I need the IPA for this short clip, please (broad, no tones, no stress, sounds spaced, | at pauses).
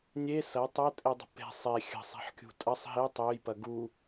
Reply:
nʲ e s ɐ tˤ ɐ tʼ e dˤ ə̤ p e̤ sˤ e xʲ ə̤ sˤ ɛ̤ ħ kʲ ṳ tʼ ɐ sˤ ɦ e tˤ ø j p ɐ ɡ u